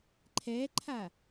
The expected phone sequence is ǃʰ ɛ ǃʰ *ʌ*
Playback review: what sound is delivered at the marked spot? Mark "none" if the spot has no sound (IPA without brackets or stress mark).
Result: a